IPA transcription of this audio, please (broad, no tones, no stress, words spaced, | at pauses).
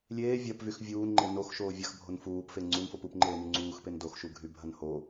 lʲeː vʲɐpvyx vʲuːnŋ͡ǃe noxʃoː vʲɐxbʱon fuːpfe ŋ͡ǀunfop upŋ͡ǃeːny ŋ͡ǀuːxpen doxʃuɡʱybʱɐn ho